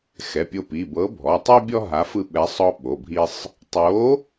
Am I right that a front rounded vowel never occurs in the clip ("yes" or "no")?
yes